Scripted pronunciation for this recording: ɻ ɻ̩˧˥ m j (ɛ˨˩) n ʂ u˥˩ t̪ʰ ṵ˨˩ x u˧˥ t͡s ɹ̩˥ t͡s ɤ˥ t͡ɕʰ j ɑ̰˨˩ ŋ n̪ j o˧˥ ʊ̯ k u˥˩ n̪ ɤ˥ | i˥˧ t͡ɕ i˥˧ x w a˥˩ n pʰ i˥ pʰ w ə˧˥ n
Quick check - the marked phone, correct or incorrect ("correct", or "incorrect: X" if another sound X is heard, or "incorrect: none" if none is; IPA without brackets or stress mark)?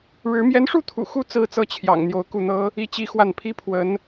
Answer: incorrect: ɛ˧˥